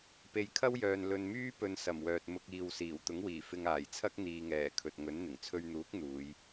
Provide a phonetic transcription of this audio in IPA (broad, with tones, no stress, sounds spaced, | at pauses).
p e˨ j kʰ ɐ˥ w j œː˨ n l ɵ˨ n m yː˥ p ɵ˨ n s ɐ˨˩ m w œː˨ t̚ m ʊ˧ k̚ iː˨ w s iː˨˩ w t̪ ʊ˨˥ ŋ w iː˨˩ f ɪ˧ ŋ aː˨˩ j t͡sʰ ɐ˥ k̚ n̪ iː˨ ŋ ɛː˨˩ kʰ ɵ˨ t̚ ŋ ɵ˨˥ n n̪ ɪ˨˩ ŋ t͡sʰ ɵ˧ ɥ n̪ uː˨˥ k̚ n̪ uː˨˧ j